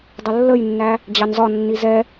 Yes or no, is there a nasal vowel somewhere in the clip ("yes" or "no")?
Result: no